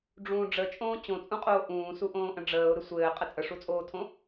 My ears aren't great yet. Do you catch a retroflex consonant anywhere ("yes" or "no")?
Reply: yes